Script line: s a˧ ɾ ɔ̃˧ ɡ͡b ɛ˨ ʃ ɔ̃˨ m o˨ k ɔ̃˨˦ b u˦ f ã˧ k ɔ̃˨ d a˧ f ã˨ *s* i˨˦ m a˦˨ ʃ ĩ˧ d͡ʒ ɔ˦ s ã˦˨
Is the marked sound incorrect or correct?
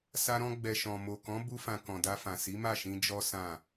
correct